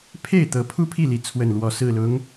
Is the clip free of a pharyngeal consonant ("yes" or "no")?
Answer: yes